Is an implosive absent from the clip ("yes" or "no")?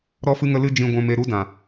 yes